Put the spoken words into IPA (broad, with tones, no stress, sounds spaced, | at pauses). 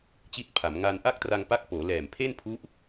t͡ɕ i˦˥ t̚ pʰ a˩˦ m ŋ a˧ n ʔ a˥˩ k̚ t r a˧ ŋ p a˦˥ k̚ p oː˩˦ l ɛː˨˩ m pʰ e˥˩ n pʰ u˦˥ ʔ